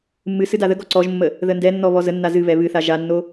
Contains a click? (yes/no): yes